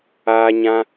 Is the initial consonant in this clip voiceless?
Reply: no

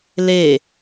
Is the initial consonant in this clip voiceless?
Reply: no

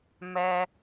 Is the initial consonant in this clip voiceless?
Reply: no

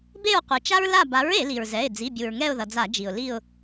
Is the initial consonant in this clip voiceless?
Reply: no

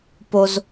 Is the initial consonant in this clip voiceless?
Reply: yes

